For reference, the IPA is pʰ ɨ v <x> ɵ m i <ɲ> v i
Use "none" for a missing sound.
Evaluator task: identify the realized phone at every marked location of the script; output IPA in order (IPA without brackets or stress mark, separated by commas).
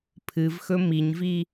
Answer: x, ɲ